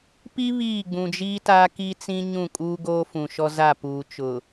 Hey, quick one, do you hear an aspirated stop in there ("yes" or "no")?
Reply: no